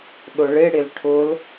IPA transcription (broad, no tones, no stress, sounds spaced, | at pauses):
ɗ ʊ ɭ ɪ ɽ ɪ l ʈʰ ʊ l